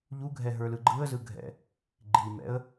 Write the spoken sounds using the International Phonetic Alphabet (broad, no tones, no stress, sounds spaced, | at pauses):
ʎ u ɡʱ ɛ ɦ ə˞ l ɯ ɡ͡ǃ ɯ ə̯ z ɯ ɡʱ ɛ̰ | ɡ͡ǃ i m ɛ̰ ə̯